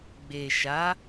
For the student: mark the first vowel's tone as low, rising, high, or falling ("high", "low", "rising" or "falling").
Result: low